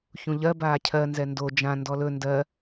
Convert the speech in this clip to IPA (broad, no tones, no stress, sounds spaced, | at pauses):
ç ũ ʎ ɜ b aː cʰ ɜ n z ɛ n d o d͡ʒ ã n d ɔ l ɵ n d ɜ